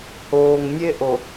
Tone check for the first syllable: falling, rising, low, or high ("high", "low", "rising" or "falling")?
low